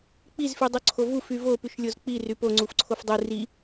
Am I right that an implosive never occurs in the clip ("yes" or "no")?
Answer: yes